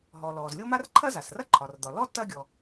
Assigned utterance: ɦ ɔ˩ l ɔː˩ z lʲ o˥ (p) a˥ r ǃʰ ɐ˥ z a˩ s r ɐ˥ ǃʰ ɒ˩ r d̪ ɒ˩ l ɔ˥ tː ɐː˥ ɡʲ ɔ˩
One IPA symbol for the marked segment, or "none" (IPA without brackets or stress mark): m